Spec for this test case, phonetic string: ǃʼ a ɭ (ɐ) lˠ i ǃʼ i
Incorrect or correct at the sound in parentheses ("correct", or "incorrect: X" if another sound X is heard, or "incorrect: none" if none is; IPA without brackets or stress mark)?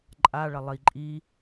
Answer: correct